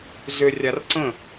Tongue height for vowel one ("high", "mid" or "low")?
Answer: high